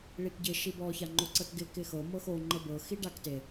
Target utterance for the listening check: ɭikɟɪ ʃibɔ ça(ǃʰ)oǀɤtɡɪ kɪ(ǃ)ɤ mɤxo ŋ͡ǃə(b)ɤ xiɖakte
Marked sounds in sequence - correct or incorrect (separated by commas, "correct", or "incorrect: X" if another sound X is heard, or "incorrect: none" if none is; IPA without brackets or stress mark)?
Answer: incorrect: ŋ͡ǃ, incorrect: x, correct